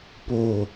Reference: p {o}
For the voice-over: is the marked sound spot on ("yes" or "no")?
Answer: yes